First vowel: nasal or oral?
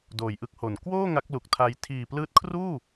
oral